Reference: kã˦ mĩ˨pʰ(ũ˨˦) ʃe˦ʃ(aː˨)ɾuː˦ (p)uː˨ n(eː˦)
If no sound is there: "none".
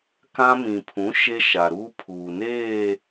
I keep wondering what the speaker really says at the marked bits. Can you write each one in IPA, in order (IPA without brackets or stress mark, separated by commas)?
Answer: ũ˨˦, a˨, pʰ, eː˦˨